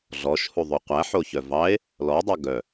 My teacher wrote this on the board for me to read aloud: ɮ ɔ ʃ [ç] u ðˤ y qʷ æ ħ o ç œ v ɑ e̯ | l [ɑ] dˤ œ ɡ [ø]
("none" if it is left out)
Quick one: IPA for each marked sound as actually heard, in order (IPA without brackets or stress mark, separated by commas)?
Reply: h, ɔ, œ